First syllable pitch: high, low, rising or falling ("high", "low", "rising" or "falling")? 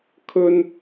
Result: high